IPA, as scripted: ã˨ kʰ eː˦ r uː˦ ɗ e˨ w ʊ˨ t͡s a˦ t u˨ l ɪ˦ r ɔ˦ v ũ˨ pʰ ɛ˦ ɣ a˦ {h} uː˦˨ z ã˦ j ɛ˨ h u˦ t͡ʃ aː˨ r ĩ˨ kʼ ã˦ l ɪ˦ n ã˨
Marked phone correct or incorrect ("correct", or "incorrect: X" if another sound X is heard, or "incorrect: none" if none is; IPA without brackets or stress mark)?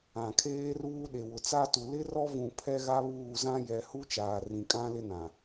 incorrect: β